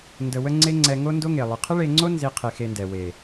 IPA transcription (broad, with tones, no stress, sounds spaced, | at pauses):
n d ə˧ w ə˦ ŋ͡ǀ e˦ ŋ͡ǀ ɛ˧ ŋ o˦ n d o˦ ŋ e˨ lˠ ɨ˨ qʰ ə˦ ɭ e˧ ŋ͡ǀ o˦ n z i˧ qʰ e˧ x e˧ n d ɛ˨ w e˨